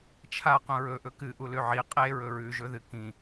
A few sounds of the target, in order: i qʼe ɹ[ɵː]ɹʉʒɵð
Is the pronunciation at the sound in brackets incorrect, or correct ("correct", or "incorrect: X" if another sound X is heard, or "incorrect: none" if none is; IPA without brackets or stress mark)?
incorrect: ɵ